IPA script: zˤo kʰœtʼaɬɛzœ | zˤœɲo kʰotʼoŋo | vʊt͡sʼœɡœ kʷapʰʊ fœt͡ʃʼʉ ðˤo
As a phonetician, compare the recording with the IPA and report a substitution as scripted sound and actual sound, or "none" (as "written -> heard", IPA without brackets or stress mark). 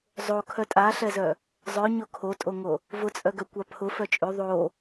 none